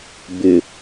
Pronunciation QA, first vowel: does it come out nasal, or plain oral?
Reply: oral